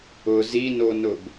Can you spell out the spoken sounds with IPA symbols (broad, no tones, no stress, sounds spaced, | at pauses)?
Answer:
ʊ z i n o n ʊ b